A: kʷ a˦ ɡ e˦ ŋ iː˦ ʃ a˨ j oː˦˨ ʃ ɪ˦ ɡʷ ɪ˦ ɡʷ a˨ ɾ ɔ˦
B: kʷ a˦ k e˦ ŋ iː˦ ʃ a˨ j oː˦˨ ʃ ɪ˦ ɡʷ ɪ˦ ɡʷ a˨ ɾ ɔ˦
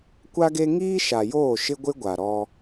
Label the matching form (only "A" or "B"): A